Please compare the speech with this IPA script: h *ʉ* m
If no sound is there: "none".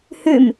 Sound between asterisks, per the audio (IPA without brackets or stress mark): ʉ